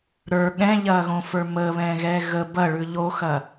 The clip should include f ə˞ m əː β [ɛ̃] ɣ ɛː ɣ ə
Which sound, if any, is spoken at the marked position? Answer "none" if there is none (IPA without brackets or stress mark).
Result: ɛ̃ː